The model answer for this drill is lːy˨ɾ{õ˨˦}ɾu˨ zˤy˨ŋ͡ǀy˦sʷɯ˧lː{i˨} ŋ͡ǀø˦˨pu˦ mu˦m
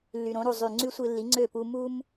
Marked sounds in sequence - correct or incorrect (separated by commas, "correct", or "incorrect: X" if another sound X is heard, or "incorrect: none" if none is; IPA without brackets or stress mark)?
correct, incorrect: i˨˦